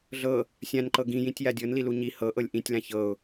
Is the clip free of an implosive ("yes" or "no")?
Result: yes